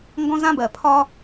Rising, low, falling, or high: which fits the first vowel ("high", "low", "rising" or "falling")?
high